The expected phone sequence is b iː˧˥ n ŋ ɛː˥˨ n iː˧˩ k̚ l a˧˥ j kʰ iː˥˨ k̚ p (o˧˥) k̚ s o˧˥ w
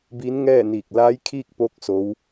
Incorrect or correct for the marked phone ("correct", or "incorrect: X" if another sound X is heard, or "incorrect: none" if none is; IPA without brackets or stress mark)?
correct